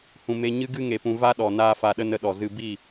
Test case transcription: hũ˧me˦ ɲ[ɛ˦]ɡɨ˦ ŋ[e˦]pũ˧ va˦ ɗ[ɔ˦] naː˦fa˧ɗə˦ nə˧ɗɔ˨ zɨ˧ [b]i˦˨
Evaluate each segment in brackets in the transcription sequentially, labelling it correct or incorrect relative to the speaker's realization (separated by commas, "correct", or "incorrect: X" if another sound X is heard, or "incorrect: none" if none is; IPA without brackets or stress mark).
incorrect: ɨ˦, incorrect: e˧, incorrect: ɔ˨, correct